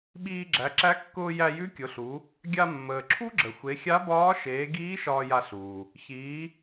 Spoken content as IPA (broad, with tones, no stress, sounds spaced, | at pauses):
ɓ iː˧ ɡ͡ǁ æ˩˧ ǁ æ˧˥ kː ʊː˧ j æ˧ j ʉ˧˥ kʲ ʊ˩˧ ɬ u˩˧ | ɡʲ a˧ mː əː˩ ǁʰ u˥ ɡ͡ǁ ə˩ xʷ e˩˧ xʲ a˧˥ b ɒː˧˥ ʃ eː˩˧ ɡ iː˧˥ ʃ ɒː˧ j a˧ ɬ uː˩ | ç iː˩˧